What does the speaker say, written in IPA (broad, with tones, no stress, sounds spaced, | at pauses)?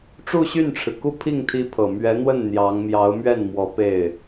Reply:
ʈ͡ʂ u˥˧ ɕ y˥˩ n ʈ͡ʂʰ ɻ̩˩ k u˥ pʰ i˥˩ ŋ t̪ʰ i˥ pʰ ɤ˨˩ m ɥ ɛ˧˥ n̪ w ə˥˩ n n̪ j ɑ˧˥ ŋ m j ɑ˧˥ ʊ̯ m ɥ ɛ˥˩ n m w ɔ˧˥ p e˥˩ ɪ̯